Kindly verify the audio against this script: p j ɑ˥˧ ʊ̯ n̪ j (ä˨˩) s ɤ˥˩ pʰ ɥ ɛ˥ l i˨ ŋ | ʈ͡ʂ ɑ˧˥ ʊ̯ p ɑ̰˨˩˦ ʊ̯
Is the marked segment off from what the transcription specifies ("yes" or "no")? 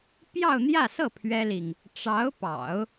yes